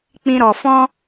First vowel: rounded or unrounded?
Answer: unrounded